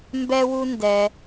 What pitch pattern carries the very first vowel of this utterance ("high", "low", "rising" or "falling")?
high